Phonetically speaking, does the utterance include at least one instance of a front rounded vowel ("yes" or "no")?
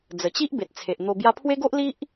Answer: no